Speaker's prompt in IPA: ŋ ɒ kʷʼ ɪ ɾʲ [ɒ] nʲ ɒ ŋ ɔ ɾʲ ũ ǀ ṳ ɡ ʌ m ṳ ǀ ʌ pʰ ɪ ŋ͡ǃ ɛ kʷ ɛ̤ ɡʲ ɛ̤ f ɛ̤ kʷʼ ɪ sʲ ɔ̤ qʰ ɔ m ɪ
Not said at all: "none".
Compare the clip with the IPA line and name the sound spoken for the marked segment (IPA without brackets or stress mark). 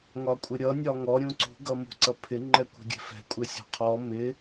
ʌ